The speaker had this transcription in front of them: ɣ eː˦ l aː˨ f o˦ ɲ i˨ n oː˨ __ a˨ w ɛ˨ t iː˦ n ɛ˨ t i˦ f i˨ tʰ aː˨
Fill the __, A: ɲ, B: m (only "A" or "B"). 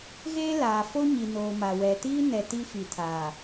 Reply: B